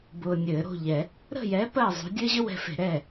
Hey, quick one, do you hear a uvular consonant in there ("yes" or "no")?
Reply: no